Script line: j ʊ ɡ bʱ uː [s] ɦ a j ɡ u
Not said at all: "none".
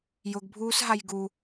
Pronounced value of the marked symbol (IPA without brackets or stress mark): s